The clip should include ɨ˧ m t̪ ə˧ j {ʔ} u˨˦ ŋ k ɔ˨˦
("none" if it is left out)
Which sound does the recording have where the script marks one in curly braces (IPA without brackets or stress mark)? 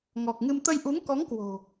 ʔ